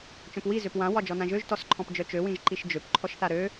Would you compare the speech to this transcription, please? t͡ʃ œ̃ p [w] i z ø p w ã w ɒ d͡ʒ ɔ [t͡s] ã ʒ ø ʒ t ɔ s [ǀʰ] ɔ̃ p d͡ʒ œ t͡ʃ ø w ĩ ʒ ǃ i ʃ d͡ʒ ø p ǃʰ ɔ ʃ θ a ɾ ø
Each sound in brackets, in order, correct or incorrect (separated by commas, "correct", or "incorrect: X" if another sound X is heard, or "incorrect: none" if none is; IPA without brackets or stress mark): correct, incorrect: n, incorrect: ǃʰ